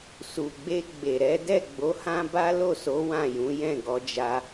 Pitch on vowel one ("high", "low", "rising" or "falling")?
low